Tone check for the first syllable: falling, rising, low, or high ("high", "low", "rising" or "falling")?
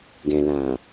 low